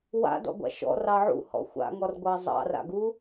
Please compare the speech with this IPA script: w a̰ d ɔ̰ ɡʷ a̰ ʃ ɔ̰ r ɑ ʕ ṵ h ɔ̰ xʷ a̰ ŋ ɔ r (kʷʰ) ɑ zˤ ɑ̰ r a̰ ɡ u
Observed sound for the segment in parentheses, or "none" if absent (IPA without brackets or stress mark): ɡʷ